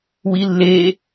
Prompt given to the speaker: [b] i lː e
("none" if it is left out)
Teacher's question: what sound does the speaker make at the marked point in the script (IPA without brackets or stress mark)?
w